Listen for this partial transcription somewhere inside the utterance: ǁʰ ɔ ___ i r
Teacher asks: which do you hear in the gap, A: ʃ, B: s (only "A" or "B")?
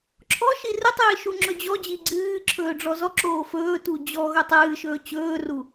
A